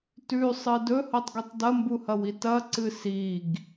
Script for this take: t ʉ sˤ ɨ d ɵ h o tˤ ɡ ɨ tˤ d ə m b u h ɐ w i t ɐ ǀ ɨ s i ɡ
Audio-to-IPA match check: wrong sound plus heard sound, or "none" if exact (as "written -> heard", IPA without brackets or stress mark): ə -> ɐ